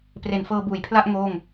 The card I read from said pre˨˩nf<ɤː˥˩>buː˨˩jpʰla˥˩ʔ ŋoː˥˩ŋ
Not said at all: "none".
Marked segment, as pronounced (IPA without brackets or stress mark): ɤː˧